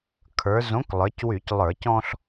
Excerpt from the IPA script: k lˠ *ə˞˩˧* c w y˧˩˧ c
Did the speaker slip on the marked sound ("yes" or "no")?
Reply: no